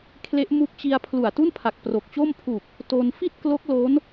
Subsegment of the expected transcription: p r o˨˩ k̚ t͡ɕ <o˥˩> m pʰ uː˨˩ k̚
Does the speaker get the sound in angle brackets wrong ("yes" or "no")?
no